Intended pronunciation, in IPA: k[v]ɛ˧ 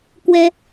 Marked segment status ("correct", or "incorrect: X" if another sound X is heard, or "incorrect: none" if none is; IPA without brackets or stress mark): incorrect: w